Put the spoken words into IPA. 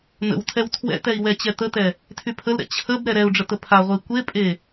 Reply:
n̪ ə̰ w tʰ ɛ w tʰ w ɛ̰ t̪ ɛ i̯ w ɛ t͡ɕ ɛ t̪ ə t̪ ɛ | tʰ y pʰ ə l ɾ ɛ̰ t͡ɕʰ ə b ɾ ɛ ɾ ɛ u̯ ɖ͡ʐ ə t̪ ə pʰ a ʁʷ e i̯ kʷ e pʼ e

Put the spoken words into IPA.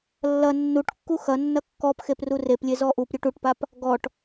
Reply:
lː ɐ nː u ʈ kː u x ɐ nː ɐ kː ɔ p x e p r u r e p lʲ e z ɔ ʔ u p ɾʲ u ʈ u ʈ p a p | ɡ ɔ ʈ

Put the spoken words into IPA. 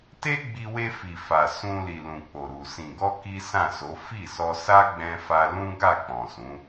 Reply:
t e˦ ɡ͡b i˧ w e˧ f i˨ f a˨ s ũ˧ l i˨ l ũ˨ k͡p o˨ ɾ u˨ s ĩ˨ ɡ ɔ˧ k i˦ s ã˦˨ s o˨˦ f i˦˨ s ɔ˧ s a˦ ɡ͡b ɛ̃˧ f a˧ l ũ˦ ɡ a˦˨ k͡p ɔ̃˨ s ũ˨˦

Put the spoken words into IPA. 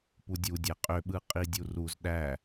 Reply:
p u dʲ u dʲ æ qʼ ø ɓ ɯ qʼ i dʲ u r u z ɗ æ

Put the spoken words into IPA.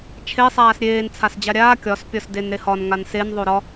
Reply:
t͡ʃʰ e sˤ aː s ɾʲ eː n t͡sʰ a s d͡ʑ a ɾʲ aː kʲ ɒ s pʲ ɒ s d e n ɾ e h ɒ n ŋ a n s e n ðˤ o ɾ ɒ

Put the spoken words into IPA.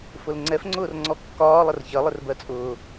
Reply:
f ʊ l ŋ͡ǀ ɛ f ŋ͡ǀ ʊː r ŋ͡ǀ ɔ kː ɒː lˠ ə r ç ɜ lˠ ɪ r b ɜ t͡sʼ ʊː

